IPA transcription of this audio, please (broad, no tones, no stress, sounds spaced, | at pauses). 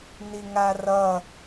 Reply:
n i ŋ a r ʌ